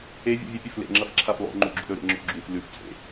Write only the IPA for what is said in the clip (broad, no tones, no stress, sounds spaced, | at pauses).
e vʲ ṵ vʲ ɨ pʲ ɵ f l ḛ ŋ͡ǁ ɐ f ǁʰ a f lˠ o̰ ŋ͡ǃ u ɡ͡ǁ ṵ ɾ ɵ ɾ ḛ ŋ͡ǁ o̰ ɡ͡ǁ u f l ʉ f t͡sʼ ḛ